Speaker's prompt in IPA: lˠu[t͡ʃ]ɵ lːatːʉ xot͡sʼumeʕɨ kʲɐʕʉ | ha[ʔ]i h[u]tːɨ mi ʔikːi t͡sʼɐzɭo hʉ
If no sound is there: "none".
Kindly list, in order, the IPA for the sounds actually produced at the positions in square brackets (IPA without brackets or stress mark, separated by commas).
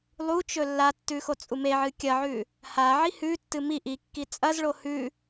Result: t͡ʃ, ʕ, ʉ